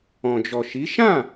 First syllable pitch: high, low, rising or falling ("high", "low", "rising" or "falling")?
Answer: low